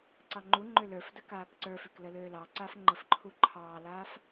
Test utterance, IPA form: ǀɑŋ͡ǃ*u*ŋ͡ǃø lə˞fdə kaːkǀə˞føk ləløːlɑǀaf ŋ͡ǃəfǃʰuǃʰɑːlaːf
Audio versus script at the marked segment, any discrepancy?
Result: no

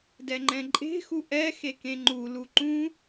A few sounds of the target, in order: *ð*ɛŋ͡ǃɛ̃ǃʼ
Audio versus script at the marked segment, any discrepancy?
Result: yes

